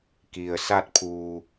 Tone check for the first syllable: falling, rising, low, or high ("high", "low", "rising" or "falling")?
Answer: low